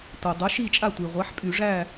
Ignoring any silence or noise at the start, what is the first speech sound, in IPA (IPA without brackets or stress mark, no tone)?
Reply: tʷ